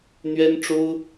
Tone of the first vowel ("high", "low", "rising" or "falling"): high